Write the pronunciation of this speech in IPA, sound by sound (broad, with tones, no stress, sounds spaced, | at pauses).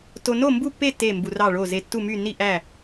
t o˧ n o˥˨ m b u˥˨ pː e˥˨ t e˥˨ m b u˧ r ɑ˥˨ ɭ o˥˨ z e˧ tː u˥˨ m y˥˨ n i˥˨ ʔ æ˥˨